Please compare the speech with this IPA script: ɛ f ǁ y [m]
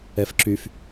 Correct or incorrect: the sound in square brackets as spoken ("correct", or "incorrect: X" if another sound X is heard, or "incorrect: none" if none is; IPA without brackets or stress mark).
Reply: incorrect: f